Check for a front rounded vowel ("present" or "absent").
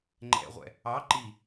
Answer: absent